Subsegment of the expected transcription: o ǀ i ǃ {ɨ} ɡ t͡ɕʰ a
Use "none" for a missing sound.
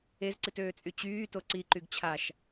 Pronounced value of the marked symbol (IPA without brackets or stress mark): y